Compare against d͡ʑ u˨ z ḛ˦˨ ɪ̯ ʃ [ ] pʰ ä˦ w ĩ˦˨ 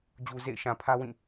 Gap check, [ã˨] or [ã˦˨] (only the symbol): ã˨